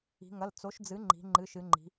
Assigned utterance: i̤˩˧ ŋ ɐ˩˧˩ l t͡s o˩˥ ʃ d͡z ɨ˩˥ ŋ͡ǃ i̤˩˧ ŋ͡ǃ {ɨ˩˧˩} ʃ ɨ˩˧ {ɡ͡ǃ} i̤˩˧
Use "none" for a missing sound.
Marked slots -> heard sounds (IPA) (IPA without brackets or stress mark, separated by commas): ɨ˩˧˩, ŋ͡ǃ